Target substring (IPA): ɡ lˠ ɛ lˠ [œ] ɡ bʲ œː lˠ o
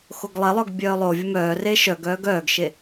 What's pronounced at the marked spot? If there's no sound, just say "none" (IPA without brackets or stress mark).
œ